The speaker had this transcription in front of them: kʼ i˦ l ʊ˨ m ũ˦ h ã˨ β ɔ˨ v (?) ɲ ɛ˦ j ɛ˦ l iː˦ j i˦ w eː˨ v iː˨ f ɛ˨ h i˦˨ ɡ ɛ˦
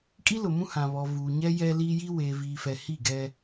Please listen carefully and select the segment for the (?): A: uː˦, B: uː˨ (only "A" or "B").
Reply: B